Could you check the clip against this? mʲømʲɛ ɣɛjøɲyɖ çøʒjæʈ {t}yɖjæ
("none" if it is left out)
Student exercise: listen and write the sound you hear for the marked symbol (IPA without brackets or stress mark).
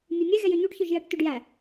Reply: t